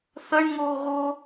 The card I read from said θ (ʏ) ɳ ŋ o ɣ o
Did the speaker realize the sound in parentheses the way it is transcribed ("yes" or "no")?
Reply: no